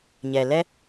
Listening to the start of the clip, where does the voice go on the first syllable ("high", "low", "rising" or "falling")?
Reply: low